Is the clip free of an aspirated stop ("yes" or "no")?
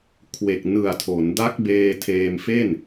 no